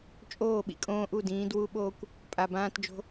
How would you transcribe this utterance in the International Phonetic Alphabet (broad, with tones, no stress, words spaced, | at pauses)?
t͡ʃʼoː˦˨ɓḭ˨kʼõː˦ʔu˦˨ dĩː˨˦dwu˦ɓoː˦kʷ | pʼa˨ bãː˦td͡ʒo̤˦